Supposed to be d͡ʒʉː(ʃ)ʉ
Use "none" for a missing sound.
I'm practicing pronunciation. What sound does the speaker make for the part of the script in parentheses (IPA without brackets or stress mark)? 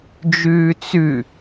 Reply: t͡s